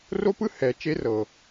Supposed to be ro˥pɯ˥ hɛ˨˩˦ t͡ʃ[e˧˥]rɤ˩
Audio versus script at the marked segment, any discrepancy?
no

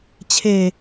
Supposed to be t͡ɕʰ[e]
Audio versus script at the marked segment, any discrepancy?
no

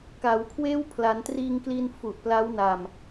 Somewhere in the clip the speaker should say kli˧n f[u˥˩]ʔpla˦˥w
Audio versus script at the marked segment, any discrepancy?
yes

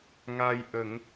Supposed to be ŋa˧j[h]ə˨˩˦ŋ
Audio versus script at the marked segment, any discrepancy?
yes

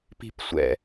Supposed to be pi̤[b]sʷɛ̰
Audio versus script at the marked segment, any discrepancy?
yes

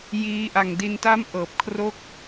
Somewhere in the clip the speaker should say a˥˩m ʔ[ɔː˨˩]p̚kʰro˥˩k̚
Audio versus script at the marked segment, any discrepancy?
yes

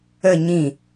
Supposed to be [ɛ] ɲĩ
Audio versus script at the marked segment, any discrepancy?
yes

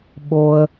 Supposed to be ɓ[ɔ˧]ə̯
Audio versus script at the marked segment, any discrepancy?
yes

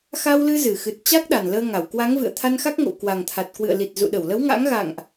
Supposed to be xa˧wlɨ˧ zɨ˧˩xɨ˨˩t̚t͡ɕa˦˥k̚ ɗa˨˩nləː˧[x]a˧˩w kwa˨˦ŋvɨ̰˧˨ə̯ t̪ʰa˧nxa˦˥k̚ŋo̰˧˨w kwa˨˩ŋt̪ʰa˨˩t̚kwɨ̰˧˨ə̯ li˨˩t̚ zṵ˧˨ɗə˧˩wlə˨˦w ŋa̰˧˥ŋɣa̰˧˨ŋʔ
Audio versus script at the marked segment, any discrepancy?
yes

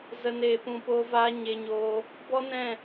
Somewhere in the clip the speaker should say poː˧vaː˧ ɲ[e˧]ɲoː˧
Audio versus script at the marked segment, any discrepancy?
no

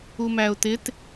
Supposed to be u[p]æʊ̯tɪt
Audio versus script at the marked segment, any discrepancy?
yes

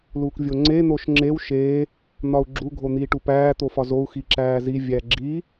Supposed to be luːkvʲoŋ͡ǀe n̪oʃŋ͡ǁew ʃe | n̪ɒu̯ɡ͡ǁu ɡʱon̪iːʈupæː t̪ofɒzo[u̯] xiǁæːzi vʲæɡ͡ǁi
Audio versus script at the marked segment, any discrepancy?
no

